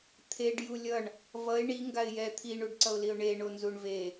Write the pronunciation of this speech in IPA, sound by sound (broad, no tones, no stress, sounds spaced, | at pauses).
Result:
t̪ʰ e ɖ j u lʲ ʌ ɳ | v ʌ ɪ̯ ɳ i ŋ ɡ a ɪ̯ j ɛ t̪ʰ i ɳ u ɖ ǀ ʌ ʊ̯ l i ʊ̯ ɳ e ɳ o n z u ɳ v e